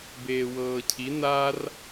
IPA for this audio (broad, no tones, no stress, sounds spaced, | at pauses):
b eː w ɤː cʰ i n a r